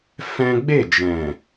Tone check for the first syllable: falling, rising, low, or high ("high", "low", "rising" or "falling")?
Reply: high